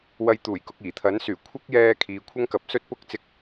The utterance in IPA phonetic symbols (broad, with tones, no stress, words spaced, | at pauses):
wɐ˧j t̪uː˨˩jkʊ˨k̚iː˨˩ t̪ʰɐ˨˥nsyː˨˩ kʷʰɐ˥k̚jɛː˧ kʰiː˨kʷʰɐ˥ŋ kɐ˨˥p̚sɵ˥t̚pʊ˥k̚t͡sɪ˧k̚